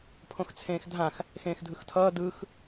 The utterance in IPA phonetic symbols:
pʰ õ x t͡sʰ ẽː x dʱ ã x | x ẽː x dʱ ɯ x tʰ ʌː d ɯ x

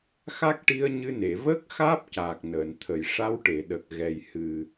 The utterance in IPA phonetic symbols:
x a˦˥ k̚ ʈ i˧ ə̯ ɲ ɨ˧ n e˨˩˨ v əː˦˥ k̚ x aː˦˥ p̚ c aː˨˩ k̚ n əː˨˩˨ n t̪ʰ ə˨˩˨ j ʂ a˧ w ʈ e˨˩˨ ɗ ə˨˩ k̚ ɣ ɛ˨˩ j h ɨ˨˩

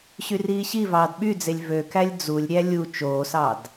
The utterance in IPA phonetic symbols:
ɕ y r iː ɕ i v ɑː d ɓ y d͡z e lʲ v ø k æ lʲ d͡z u lʲ ɾʲ æ lʲ u t͡ʃ oː s ɑ d

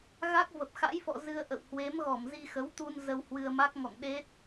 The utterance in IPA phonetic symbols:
ɣ a˦˥ k̚ v ə˨˩ p̚ x a̰˧˥ j f ɔ̰˧˨ z ɨ˧ ə̯ ʔ ə̰˧˨ w h w e˨˦ m ɣ ɔ˧˩ m z i˧ x ə˨˦ w t̪ u˧ n z ə˧ w h w ɨ˧ ə̯ m a˦˥ k̚ ŋ ɔ̰˧˨ ŋ ɗ e˦˥ t̚

